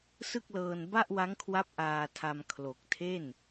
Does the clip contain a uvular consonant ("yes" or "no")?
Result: no